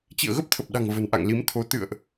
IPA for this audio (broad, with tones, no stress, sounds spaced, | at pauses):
t͡ɕ ḭ˧˨ ə̯ ɣ ə˦˥ p̚ t̪ʰ ə˨˩ p̚ ɗ a̤˨˩ ŋ v ə̤˨˩ n ʔ a̰˧˨ ŋ l i˨˦ m t̪ʰ o˨˦ t̪ ɨ̰˧˨ ə̯ ʔ